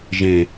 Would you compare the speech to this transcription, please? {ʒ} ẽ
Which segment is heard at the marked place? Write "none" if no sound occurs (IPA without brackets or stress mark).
ʒ